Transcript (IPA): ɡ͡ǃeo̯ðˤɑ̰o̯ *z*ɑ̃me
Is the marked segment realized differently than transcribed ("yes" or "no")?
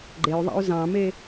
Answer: no